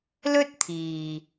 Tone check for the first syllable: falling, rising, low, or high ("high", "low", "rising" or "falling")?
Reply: high